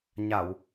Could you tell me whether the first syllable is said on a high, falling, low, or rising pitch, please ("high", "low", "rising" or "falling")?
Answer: low